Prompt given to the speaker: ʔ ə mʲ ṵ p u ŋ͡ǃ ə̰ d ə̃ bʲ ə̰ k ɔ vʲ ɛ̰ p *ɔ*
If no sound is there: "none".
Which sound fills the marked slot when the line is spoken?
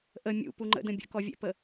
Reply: ə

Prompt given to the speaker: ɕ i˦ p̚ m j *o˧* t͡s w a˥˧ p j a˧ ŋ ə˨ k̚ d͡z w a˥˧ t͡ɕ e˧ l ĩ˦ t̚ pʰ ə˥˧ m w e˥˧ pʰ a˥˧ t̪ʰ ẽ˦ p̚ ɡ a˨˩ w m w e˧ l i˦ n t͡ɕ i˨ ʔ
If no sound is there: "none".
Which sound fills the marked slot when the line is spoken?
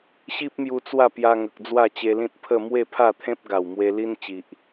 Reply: u˧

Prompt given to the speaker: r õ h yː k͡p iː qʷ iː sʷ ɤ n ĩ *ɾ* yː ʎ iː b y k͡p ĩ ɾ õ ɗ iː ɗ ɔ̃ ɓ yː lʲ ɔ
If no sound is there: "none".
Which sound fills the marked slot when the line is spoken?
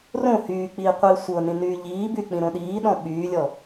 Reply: n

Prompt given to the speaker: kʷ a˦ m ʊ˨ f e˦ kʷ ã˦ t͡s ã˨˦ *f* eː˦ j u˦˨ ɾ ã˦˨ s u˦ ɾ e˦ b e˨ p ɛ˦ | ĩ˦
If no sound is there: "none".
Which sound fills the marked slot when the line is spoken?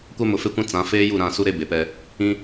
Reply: f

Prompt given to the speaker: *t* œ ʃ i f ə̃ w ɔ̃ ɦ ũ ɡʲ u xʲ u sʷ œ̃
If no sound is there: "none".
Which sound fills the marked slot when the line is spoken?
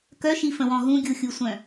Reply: k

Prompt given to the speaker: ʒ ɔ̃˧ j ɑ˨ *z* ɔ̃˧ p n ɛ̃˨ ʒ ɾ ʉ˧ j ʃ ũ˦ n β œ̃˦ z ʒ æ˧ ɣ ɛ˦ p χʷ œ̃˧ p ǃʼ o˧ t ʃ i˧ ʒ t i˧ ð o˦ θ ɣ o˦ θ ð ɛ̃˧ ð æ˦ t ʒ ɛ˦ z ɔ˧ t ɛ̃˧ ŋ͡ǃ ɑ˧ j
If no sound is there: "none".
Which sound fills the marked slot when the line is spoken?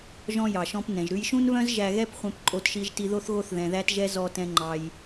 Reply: ʃ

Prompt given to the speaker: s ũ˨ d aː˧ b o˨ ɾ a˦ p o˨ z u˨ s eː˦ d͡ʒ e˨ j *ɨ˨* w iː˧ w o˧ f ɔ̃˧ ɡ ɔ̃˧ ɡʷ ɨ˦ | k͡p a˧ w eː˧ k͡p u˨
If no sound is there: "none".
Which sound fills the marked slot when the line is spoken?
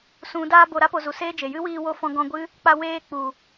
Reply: ɨ˦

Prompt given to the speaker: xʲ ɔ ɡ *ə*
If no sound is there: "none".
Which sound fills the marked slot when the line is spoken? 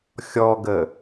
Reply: ə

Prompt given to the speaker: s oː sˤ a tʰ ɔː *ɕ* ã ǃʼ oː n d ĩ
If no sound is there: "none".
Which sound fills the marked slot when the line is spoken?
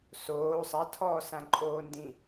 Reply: s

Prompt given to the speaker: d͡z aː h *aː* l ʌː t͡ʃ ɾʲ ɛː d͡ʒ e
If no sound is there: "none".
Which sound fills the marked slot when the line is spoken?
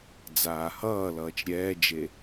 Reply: ʌː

